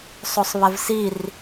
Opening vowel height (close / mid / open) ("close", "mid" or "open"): mid